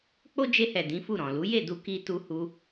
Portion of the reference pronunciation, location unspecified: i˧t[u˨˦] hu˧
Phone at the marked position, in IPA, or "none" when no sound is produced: u˧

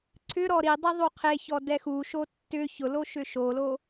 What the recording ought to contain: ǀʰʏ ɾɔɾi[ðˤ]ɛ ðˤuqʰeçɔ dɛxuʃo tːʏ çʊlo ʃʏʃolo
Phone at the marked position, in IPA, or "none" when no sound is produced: dˤ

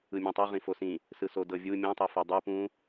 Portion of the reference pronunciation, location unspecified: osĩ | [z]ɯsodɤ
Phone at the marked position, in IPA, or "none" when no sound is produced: s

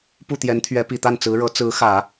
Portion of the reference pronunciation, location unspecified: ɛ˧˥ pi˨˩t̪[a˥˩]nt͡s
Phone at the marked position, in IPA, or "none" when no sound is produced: a˥˩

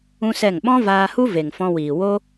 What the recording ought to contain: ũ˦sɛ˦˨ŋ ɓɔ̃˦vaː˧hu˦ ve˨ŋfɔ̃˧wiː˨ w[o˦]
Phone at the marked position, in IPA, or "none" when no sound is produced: o˦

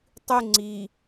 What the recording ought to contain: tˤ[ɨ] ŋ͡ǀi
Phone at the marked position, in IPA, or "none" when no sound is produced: ɨ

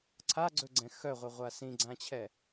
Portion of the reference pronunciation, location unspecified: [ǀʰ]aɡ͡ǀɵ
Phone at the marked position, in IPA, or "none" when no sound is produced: ǀʰ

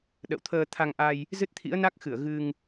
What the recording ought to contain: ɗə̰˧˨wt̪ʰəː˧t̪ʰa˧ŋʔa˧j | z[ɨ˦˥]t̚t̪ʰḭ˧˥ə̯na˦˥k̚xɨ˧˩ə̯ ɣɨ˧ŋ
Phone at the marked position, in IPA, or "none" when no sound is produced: ɨ˦˥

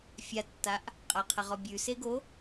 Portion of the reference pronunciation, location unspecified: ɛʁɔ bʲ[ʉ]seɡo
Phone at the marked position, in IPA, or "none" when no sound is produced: ʉ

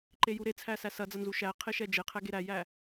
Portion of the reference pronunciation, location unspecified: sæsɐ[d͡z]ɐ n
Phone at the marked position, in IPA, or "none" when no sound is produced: d͡z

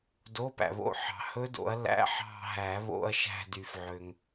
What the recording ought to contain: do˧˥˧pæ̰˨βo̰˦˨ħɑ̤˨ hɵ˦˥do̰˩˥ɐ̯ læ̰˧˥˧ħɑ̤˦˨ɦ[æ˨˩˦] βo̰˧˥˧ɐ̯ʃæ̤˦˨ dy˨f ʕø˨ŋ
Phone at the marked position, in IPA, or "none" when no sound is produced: æ˨˩˦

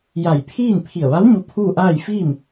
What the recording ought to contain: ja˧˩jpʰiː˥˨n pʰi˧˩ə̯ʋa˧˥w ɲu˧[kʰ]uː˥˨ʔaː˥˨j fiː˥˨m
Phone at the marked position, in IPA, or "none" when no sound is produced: pʰ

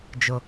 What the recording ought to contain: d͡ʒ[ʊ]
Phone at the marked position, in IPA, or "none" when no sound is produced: ʊ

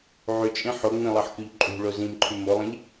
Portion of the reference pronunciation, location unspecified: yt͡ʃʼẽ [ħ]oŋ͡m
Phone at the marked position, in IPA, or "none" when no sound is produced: ħ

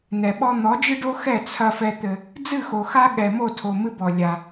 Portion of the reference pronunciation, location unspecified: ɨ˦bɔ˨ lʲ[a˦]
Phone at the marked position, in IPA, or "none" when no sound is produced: a˦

